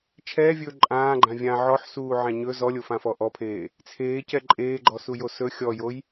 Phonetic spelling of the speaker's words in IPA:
t͡ʃʰ ɛː vʲ ɵː ǃʼ ãː ɡ͡ǃ ã vʲ ã ʕ ɔ ħ s uː ʕ ã ɲ ɵ z ɔ lʲ o f ã f ɔ ʔ ɔ pʰ eː | t͡sʰ eː c ɛ ǃʼ eː ɡ͡ǃ ɔ s u j o s ɵ xʲ ɔ j o j

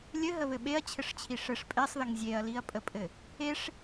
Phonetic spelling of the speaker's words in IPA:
lʲ ɘ ɦ ə β ɘ ɓ e ɐ̯ t͡ɕʰ ɘ ʂ t͡ɕʰ i ʂ ɘ ʂ pʼ e sˤ ð ə ŋ zʲ e ɐ̯ l i ɐ̯ pʼ ə pʼ ɘ | e ʂ

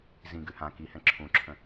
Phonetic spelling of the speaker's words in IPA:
z ĩ ɡ ʉ h ã k i h ɛ̃ ǁʰ ũ ǁʰ ə̃

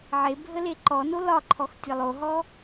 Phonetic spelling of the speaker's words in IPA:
ʕ e bʱ ə l e ǃ ɔ n o l ɒ ǃʰ ɔ x tʲ ə lˠ o ɦ ɔ

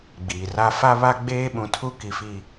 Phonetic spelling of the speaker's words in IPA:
ɡ͡b iː˨ r a˦ f a˦ β a˦ ɡ͡b eː˦ ɓ ũ˨ tʰ u˦ k i˨ f i˨

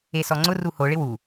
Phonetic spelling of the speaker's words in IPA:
e s ɔ ŋ͡ǀ ʊ r u h o ɭ ɪ w u

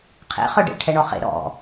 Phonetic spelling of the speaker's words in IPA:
qʰ ḛ χ œ ɖ ḛ ʈʰ ɛ ɳ ɔ χ ḛ ɾ ɔ̰

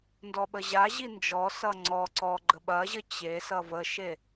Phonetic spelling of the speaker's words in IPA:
n d ɔ ɓ ə ʑ a ʑ i n d͡ʒ ɔ s ʌ ŋ͡ǀ ɔ ǀ ɔ ɡ͡ǃ ə ɓ ɐ ʑ ə t͡ɕ e s ʌ v ə ʃ e

